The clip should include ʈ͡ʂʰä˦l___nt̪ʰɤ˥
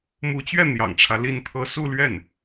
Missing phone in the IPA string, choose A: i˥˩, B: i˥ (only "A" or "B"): A